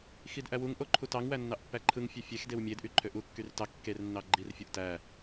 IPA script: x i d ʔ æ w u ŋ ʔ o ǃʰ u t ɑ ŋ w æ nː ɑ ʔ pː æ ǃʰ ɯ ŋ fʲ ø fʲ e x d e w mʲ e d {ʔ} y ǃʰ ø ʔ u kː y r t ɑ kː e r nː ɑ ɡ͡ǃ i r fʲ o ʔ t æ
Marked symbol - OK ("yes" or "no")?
yes